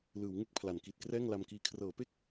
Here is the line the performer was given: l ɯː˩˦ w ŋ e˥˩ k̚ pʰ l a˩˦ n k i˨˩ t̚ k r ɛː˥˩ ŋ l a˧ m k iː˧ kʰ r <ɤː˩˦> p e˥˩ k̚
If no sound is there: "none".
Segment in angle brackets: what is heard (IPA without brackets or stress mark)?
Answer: ɤː˩˦